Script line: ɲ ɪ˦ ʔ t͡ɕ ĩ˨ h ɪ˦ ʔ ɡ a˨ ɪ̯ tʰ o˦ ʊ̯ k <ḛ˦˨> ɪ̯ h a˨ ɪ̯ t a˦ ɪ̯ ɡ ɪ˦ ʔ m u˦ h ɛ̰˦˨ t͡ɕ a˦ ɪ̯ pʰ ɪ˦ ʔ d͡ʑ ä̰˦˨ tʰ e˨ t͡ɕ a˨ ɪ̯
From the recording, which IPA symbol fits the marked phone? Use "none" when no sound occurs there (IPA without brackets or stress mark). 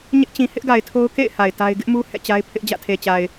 ḛ˦˨